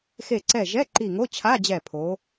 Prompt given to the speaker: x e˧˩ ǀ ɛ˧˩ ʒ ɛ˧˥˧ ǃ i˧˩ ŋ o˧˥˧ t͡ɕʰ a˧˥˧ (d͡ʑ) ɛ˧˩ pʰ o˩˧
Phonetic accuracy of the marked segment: correct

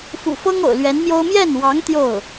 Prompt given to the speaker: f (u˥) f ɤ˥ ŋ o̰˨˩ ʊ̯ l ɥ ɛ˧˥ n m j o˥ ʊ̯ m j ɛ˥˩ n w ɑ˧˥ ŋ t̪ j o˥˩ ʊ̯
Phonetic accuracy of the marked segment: incorrect: ṵ˨˩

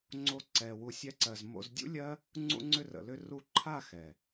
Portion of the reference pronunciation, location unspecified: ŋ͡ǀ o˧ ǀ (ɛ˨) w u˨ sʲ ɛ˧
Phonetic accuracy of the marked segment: correct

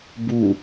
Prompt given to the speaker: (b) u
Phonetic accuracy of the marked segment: correct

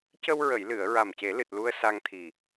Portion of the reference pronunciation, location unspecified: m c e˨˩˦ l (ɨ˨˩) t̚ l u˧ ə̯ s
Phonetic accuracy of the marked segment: correct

